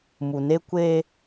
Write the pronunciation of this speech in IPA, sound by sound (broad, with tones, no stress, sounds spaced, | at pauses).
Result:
m u˨ n e˦ kʷ e˦